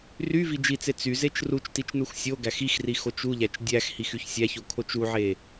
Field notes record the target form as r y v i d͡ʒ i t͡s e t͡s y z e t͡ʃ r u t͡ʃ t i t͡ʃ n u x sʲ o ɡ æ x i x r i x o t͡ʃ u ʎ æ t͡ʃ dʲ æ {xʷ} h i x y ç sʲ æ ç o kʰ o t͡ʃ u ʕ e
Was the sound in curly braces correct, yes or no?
no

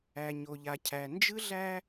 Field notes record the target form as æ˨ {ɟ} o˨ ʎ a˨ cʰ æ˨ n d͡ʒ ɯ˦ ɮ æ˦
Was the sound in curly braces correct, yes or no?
no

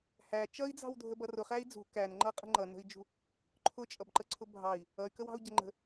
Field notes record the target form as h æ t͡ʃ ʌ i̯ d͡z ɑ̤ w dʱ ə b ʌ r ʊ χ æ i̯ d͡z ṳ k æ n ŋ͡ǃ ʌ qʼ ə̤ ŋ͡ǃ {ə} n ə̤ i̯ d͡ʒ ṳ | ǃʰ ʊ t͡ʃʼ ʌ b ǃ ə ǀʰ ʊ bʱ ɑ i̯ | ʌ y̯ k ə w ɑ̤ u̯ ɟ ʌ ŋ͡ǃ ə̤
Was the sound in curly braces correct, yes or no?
no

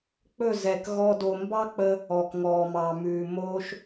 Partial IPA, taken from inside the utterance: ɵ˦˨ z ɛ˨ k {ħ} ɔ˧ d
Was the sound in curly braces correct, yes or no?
no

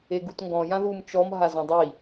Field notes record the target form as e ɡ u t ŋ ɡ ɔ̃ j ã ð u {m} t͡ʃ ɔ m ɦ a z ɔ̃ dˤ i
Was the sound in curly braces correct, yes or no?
yes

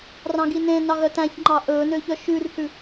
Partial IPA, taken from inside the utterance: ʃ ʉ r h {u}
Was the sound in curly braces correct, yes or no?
no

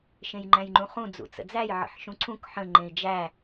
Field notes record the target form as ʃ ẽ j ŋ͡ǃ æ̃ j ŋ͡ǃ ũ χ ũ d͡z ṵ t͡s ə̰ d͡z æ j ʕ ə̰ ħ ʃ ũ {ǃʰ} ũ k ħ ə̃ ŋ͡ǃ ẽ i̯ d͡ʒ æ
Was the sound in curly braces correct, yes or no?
no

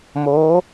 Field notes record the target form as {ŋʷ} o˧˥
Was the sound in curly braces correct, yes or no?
no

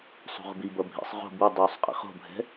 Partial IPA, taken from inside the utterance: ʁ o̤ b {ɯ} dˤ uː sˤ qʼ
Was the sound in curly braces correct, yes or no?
yes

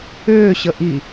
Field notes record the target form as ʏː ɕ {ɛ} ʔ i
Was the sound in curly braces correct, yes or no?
no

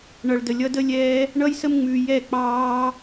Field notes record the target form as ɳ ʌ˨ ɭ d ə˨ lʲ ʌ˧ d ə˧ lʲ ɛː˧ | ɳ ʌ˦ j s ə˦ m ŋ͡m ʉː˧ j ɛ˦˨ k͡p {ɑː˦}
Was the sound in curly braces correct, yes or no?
yes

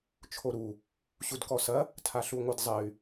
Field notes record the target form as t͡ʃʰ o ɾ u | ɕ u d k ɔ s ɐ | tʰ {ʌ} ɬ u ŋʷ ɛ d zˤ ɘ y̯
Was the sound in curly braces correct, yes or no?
no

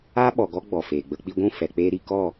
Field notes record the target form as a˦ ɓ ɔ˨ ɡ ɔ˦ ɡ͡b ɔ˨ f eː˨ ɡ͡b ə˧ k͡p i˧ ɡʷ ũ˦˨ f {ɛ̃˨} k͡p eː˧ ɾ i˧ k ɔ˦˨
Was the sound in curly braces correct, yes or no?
no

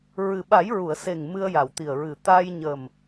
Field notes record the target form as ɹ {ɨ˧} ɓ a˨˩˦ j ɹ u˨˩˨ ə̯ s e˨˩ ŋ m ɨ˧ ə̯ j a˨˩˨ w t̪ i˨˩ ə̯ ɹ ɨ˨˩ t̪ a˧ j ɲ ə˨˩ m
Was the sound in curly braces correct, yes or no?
no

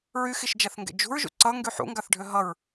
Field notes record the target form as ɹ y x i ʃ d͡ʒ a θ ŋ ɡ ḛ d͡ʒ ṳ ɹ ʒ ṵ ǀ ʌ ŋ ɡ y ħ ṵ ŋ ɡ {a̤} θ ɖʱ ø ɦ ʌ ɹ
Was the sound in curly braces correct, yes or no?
no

